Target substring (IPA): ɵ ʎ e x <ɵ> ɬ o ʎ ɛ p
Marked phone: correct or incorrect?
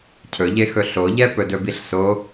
correct